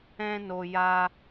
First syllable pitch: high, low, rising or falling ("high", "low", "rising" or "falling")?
high